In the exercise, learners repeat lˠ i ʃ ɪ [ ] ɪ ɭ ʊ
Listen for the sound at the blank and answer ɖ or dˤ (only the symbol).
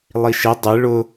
dˤ